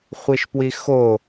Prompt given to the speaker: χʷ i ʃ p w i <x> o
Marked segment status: correct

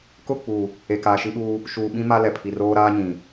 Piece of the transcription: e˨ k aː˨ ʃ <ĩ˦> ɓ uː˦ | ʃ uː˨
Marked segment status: incorrect: i˦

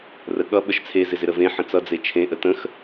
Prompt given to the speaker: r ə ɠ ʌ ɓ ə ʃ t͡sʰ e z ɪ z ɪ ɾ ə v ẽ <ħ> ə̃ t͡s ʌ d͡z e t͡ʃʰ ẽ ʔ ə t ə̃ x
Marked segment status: correct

